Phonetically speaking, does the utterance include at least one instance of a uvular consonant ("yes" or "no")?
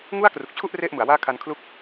no